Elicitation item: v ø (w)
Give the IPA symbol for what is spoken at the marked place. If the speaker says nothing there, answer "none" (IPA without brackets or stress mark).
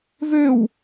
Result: w